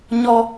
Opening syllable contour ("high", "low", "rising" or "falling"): high